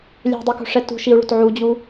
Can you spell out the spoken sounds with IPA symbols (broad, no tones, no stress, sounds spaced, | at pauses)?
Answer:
lʲ ɛ̤ dˤ i k o̤ ʂ ɛ t ṳ ʃ i u̯ ɭ o̤ t ʕ u d͡ʑ u